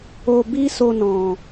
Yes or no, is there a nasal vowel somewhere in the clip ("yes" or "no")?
yes